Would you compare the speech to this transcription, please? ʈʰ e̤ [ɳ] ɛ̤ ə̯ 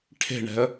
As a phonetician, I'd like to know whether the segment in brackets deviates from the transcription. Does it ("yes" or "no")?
no